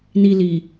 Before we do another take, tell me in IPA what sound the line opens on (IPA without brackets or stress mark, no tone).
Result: n